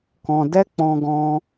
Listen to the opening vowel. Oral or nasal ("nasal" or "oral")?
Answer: nasal